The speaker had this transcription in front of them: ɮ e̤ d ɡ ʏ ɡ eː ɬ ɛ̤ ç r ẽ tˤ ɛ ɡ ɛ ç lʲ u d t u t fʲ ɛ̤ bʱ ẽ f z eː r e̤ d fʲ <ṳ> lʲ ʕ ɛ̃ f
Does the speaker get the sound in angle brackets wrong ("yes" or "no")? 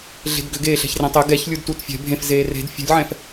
no